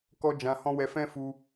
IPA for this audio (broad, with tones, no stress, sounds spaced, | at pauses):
k ɔ˦ d͡ʒ ã˧ h ɔ̃˦ w ɛ˧ f ɛ̃˦ f u˧